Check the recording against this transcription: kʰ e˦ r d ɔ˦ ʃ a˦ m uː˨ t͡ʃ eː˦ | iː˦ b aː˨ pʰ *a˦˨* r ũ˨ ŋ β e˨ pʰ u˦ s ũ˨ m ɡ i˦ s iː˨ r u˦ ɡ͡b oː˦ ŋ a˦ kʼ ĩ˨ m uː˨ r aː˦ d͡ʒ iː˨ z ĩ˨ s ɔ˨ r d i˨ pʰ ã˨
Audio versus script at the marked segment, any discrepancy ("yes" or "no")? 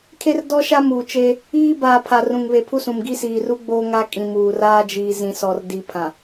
yes